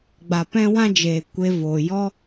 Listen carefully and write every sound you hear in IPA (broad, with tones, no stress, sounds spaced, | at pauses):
ɡ͡b a˨ p ɛ̃˦ w ã˦ d͡ʒ eː˨ kʷ e˧ v oː˨ j ɔ˦